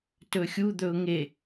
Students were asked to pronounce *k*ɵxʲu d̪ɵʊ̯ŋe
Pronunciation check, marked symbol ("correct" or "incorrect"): incorrect